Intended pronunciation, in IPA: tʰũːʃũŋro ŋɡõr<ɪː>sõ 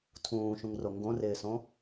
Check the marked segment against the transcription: correct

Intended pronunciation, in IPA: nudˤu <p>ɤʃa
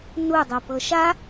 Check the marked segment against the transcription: correct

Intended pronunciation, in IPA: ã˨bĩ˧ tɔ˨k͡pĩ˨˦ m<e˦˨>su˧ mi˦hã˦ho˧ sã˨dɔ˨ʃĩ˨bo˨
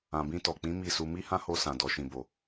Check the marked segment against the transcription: incorrect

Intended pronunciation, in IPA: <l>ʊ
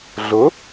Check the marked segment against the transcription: incorrect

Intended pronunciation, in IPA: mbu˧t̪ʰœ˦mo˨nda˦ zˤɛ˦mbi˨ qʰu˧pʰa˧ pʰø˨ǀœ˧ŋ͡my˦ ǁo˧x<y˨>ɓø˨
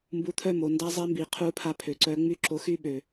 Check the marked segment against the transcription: incorrect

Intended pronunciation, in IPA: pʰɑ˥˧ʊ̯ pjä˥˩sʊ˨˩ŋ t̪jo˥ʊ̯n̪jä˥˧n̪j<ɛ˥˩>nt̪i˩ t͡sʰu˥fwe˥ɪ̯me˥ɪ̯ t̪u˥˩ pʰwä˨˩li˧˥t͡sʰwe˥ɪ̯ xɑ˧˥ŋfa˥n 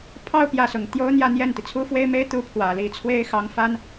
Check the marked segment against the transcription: correct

